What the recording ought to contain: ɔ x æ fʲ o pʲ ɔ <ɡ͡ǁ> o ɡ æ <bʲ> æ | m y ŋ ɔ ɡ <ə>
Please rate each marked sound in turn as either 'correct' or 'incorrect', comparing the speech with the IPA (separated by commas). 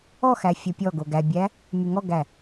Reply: incorrect, correct, incorrect